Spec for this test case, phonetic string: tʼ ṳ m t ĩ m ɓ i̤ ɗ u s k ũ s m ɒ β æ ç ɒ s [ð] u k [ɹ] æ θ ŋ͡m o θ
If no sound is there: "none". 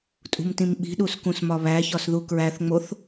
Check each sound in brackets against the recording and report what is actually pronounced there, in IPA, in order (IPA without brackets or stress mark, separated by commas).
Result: ð, ɹ